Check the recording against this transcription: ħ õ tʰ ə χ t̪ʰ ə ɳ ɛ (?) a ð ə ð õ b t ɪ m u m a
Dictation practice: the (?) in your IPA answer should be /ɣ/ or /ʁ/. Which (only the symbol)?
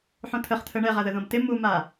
ʁ